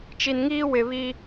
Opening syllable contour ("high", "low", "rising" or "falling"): low